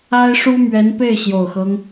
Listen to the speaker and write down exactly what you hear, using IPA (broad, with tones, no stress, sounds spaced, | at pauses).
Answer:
a˥ ɪ̯ ʂ u˥ m ɥ ɛ˧˥ n p e˥˩ ɪ̯ ɕ j o˨˩ ʊ̯ x ɤ˦ ŋ